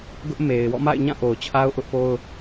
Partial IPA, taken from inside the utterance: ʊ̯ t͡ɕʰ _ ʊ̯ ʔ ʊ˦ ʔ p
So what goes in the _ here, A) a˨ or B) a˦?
B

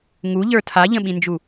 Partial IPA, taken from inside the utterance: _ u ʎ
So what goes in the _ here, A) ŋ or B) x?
A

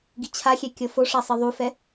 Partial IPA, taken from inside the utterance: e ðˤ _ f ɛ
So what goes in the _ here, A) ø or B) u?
B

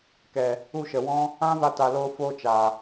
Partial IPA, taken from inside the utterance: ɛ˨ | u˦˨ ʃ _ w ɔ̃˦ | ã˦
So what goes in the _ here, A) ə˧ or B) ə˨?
B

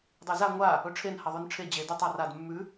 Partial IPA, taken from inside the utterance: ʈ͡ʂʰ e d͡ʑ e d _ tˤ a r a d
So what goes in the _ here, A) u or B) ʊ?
A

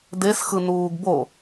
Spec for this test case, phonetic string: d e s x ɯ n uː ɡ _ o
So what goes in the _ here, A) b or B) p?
A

